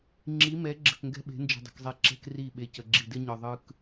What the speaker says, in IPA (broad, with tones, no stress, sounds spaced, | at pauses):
ŋ͡ǁ i˨˦ m ɛ˨˦ ɡ͡ǁ ə̤˨ k ŋ ɡ ɛ̤˦ ɓ e̤˨˦ n d͡ʒ ə̤˨ dˤ ə̤˨ k zˤ e˨ ǁ ɛ̤˦ k r i˦˨ ɓ e˨ c ə˨ ɡ͡ǁ i˨ d ɪ˦ ɲ œ˨ ðˤ ɯ˦ k